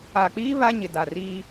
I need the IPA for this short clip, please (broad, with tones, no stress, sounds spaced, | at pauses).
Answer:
a˨ k͡p iː˦ β a˦ ɲ ɪ˨ d a˨ r iː˦